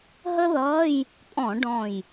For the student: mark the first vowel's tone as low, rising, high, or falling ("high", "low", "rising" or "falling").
high